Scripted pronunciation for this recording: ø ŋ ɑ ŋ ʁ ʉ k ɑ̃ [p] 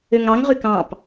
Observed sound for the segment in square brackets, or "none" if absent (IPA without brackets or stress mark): p